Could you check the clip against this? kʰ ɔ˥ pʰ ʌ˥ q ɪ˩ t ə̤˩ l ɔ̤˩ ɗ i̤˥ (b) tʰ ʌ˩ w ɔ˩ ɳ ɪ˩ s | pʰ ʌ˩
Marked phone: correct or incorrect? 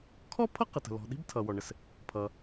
correct